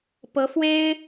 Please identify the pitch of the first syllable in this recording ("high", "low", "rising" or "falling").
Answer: rising